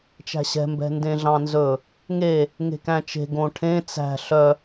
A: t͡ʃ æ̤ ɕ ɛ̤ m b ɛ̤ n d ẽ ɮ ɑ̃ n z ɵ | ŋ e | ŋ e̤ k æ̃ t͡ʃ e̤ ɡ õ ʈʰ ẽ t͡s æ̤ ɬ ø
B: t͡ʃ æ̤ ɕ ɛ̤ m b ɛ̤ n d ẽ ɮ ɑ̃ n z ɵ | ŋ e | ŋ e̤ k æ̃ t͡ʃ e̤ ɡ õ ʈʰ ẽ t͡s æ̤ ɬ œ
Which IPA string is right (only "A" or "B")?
B